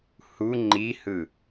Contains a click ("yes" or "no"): yes